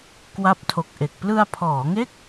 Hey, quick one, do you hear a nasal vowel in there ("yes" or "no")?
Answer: no